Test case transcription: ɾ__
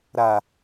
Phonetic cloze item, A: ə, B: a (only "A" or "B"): B